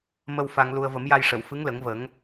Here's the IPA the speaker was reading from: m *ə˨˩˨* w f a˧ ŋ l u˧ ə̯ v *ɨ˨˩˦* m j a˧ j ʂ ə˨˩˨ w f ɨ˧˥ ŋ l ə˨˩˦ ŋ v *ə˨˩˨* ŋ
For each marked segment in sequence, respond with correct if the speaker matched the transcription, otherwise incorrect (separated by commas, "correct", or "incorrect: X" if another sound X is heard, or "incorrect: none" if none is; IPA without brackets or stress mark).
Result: incorrect: ə˧, incorrect: ə˨˩˦, incorrect: ə˨˩˦